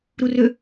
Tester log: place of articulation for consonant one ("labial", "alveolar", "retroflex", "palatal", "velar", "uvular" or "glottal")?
alveolar